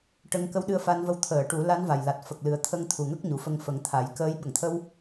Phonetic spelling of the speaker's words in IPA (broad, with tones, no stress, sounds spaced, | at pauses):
ʈ ə˧˥ ŋ k ə˧˥ w ɗ ɨ˧ ə̯ f a˧ n v ə˧ w t̪ʰ əː˨˩˨ ʈ u˨˩˦ l a˧˥ n v a˨˩ j l a˨˩ t̚ f ə˨˩ k̚ l ɨ˨˩ ə̯ t̪ʰ ə˧ ŋ t̪ʰ u˨˩ ŋ ə˦˥ k̚ ɲ u˨˩ f ə˧ ŋ f ə˨˩˦ ŋ t̪ʰ a˨˩˦ j k əː˧˥ j ɓ ə˨˩˨ ŋ t̪ʰ ə˧ w